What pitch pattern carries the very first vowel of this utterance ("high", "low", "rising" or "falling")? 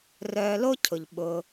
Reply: low